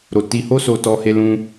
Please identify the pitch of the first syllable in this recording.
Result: low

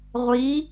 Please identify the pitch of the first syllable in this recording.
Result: rising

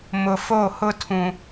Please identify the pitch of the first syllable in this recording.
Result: low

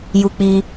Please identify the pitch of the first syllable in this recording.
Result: high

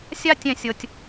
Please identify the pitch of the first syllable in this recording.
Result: high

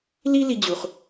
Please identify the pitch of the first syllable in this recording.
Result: high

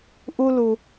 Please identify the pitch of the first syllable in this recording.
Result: high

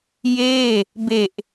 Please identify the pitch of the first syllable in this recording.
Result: falling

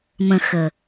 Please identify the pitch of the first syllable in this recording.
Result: low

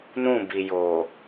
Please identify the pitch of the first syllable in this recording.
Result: falling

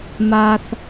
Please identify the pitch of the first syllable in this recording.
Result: high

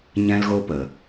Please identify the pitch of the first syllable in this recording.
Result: high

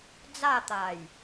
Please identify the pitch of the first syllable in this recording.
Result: falling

